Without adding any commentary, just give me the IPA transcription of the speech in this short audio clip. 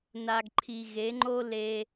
n a˨ ɡ ǃʰ i˨ ɣ e˨˦ ŋ͡ǃ o˦ l e˦

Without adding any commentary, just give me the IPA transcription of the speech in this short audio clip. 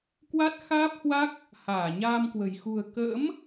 k w a˦˥ t̚ x aː˦˥ p̚ h w a˦˥ k̚ | h aː˧˩ ɲ aː˧ m k w ə̤˨˩ j x ṳ˨˩ ə̯ k ə̰ː˧˥ m

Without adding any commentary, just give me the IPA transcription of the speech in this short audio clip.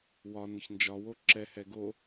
w ɒ n ə ç n d͡ʒ ɒ w o ǁ ɛ h ɛ ɡ o

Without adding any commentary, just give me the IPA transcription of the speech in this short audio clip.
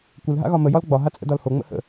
kʷ ə l ɦ a̰ ɣ ɒ m ə j ɒ l ɡ͡b ɒ ɦ a t͡sʼ ə̰ d ɒ l h o ŋ͡m ə̰ h ə̰

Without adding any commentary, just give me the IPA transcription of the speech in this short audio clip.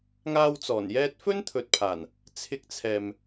ŋ aː˧ w t͡s ɔː˨˩ n j ɛː˧ t̚ f ɵ˥ n t̪ʰ ɵ˨ t̚ pʰ aː˨˩ n | t͡sʰ ɪ˧ k̚ t͡sʰ ɛː˨ m

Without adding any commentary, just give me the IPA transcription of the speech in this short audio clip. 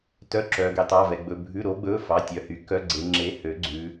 t œ˩˧˩ ǁ œ˩ ɡ e˩˧ tˤ ɑ˩˧˩ v ɛ˩ ɡ͡b ɵ˩˧˩ bʱ ʉ˩˧˩ ɾ o˩˧ ɡ͡b ɵ˩˧˩ f ɑ˩˧˩ tʲ œ˩˧ h y˩ k œ˩˧˩ ɡ͡ǀ e˩˧ ŋ͡ǁ e˩˥ h ø˩˥ ɡ͡ǀ ʉ˩˧

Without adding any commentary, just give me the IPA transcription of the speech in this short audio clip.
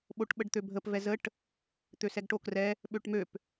ɓ o ʈ ɓ ə ɖ t̪ ø bʱ ə p v ɛ z ə ʈ | t̪ ø s ɛ ɡ ʈ o k r ɛ | ɓ ø ʈ m ø p

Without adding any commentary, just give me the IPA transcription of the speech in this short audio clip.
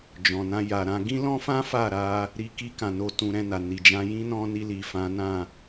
d͡ʒ ɔ̃˨ n ã˧ j a˨ ɾ ã˧ ɡ ĩ˦ l ɔ̃˦ f ã˦ f a˦˨ ɾ a˧ | ɾ i˧ k i˧ k ã˨ n o˧ t ũ˧ ɾ ɛ̃˧ n a˨ n i˨ d͡ʒ ã˧ j ĩ˦ n ɔ̃˧ n i˧ l i˨ f ã˨˦ n ã˦˨

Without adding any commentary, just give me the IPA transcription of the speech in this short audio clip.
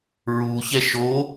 ɹ u ç ɛ ʃ o

